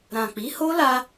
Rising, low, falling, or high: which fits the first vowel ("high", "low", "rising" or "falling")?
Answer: low